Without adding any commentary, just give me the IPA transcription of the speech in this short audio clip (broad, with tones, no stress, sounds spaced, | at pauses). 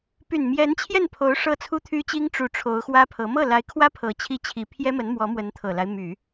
p y˨˩ n m j ɛ˧˥ n t͡ɕʰ j ɛ˥˩ n pʰ o˧˥ ʊ̯ ʂ ɤ˥˩ t͡sʰ u˥ t̪ʰ y˥ t͡ɕ i˥ ŋ ʈ͡ʂ u˨˩ ʈ͡ʂʰ o˧˥ ʊ̯ x w ä˥ pʰ ɤ˧˥ m ɤ˥˩ l a˧˥ ɪ̯ kʰ w ä˥ pʰ ɤ˧˥ t͡ɕʰ i˥ t͡ɕʰ i˧˥ pʰ j ɛ˥ m ə˧˥ n m w ɔ˧˥ m w ə˧˥ n t̪ʰ ɤ˨˩ l a˦ ɪ̯ m y˨˩˦